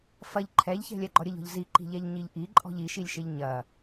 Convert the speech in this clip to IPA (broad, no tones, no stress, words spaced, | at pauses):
fɐʎ ǃʰɛʎçɛ̤ lʲɛɡ͡ǃɔɾʲəʎɔ̤ʎ ziǃi̤ʎɛʎ ɲiʎʔiǃʼɔ̤ʎ iʃilʲʃɪʎ ɲɐ